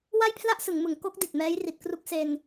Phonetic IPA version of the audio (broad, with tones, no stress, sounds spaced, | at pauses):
w a˥˩ j pʰ l a˥˩ ʔ s ɯ˩˦ ŋ m ɯ˩˦ ŋ k o˦˥ k̚ d i˨˩ t̚ m ɛː˦˥ j r i˨˩ t̚ k r u˦˥ k̚ s e˧ n